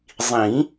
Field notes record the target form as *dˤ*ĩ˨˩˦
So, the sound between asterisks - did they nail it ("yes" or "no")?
no